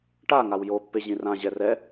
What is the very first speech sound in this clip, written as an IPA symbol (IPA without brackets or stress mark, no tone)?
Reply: ʈ